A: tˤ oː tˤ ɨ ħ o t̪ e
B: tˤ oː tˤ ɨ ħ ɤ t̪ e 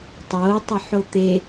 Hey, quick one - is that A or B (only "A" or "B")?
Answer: A